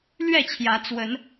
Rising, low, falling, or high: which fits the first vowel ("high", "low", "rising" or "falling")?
falling